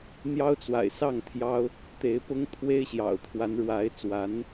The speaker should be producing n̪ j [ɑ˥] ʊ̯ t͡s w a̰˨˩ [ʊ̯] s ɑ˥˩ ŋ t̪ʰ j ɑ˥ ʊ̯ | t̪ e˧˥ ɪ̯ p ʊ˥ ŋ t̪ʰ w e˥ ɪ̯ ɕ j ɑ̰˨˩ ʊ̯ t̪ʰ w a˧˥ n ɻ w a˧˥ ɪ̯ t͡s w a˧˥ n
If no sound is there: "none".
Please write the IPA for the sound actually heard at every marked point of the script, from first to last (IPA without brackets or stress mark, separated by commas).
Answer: ɑ˥, ɪ̯